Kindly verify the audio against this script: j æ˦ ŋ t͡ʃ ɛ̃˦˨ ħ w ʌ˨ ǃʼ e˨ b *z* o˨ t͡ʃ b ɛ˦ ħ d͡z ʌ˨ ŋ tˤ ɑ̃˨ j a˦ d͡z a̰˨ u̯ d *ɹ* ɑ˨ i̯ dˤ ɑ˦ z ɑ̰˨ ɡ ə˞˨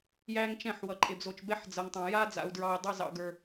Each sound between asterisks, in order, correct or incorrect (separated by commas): correct, correct